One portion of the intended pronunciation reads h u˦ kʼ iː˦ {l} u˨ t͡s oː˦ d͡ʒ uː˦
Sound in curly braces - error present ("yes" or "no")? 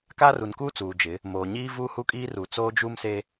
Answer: yes